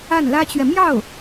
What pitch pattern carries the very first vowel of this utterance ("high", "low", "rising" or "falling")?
falling